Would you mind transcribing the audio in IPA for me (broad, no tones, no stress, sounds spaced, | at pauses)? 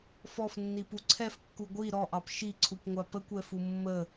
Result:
f ɔ f nː i p u ǀʰ ɛ f kː u ɡʷ i ɾ ɔ ʔ ɑ p ʃ i ǀʰ u p ŋʷ a p ə kʷ ɛ f u mː ə